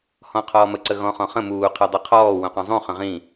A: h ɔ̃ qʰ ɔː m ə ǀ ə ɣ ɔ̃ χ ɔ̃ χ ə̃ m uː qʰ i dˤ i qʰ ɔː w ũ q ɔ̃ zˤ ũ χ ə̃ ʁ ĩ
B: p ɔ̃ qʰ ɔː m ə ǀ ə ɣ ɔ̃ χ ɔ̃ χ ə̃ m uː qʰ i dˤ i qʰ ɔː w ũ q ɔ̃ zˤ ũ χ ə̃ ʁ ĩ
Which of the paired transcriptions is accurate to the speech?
A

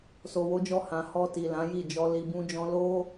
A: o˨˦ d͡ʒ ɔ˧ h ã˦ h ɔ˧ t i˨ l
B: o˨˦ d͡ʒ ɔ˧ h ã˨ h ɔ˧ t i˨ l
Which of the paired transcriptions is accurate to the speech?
B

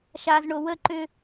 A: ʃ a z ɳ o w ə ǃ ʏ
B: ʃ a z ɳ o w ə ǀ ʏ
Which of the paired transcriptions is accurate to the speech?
A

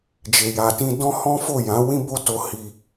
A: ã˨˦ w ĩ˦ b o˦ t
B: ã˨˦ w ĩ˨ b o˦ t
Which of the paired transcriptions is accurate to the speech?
A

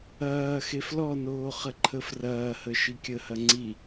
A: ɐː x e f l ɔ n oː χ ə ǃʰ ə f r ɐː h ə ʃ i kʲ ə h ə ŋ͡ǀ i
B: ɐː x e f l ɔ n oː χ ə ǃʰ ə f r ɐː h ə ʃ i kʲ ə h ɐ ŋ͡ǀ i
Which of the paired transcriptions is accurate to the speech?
B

